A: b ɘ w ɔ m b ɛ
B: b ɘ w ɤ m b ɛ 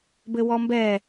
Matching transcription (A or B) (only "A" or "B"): A